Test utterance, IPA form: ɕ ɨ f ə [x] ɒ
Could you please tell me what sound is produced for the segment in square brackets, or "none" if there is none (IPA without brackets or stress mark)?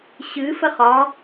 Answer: χ